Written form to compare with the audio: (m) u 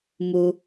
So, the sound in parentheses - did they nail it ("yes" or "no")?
yes